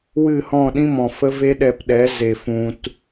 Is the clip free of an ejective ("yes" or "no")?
yes